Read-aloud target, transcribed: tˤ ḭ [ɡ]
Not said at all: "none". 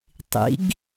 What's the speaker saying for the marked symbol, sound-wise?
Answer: ɡ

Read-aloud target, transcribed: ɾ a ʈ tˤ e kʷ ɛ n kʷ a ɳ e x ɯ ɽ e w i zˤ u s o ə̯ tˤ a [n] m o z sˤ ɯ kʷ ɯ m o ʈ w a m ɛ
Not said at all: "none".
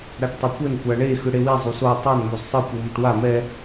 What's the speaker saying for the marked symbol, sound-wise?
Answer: n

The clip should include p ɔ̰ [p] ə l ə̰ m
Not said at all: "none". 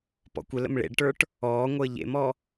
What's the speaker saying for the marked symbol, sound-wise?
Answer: kʷ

